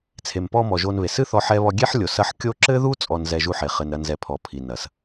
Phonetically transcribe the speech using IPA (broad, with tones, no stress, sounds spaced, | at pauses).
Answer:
t͡sʰ e˨ m p ɔ˧ m ɔ˨ ʒ o˧ n β e˨ s ɨ˦ θ ɔ˧ ħ ɛ˧ β ɔ˧ ɡʲ e˦ ħ lʲ o˨ s ɐ˧ ħ kʲ o˦ ǁ ɘ˦ ð u˦ t͡sʼ ɔ˧ n z ɛ˧ ʒ u˧ ħ e˨ χ ɘ˧ n ɾ ɐ˦ n z ɛ˧ pʰ ɔ˨ pʰ i˨ n ɐ˨ s